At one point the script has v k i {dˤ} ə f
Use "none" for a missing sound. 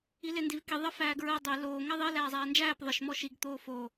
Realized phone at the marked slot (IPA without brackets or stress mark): ðˤ